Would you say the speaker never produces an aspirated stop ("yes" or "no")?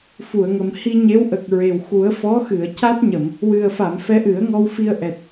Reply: yes